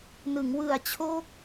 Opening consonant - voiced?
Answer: yes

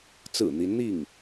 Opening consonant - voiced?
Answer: no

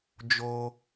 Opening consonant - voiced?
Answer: yes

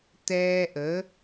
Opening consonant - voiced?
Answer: no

